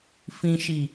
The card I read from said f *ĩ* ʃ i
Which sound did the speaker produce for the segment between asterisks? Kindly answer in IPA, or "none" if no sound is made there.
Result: ĩ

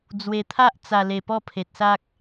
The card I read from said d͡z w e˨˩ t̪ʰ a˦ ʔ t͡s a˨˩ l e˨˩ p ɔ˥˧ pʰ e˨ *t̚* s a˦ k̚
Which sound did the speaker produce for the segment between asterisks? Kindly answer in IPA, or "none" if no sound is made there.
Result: t̚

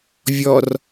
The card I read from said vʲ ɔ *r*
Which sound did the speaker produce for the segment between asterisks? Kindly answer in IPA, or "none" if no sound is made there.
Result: r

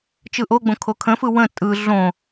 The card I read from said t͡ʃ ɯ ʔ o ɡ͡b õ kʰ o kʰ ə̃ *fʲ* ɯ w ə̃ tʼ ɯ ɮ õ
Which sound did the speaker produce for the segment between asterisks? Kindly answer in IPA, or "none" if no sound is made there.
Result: f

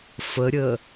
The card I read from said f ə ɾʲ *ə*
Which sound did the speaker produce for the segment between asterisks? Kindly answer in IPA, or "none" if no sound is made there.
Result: ə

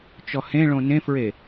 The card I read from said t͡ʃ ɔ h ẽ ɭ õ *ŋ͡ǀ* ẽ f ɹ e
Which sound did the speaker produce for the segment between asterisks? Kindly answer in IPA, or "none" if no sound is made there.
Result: n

